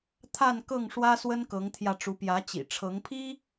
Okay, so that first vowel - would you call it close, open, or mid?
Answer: open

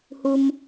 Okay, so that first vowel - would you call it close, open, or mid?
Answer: close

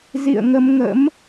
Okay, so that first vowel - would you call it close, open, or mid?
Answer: close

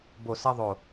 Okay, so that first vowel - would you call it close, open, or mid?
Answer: mid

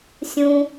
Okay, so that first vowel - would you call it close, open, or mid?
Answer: close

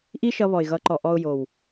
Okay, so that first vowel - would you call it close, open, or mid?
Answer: close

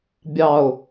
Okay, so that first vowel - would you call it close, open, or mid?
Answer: open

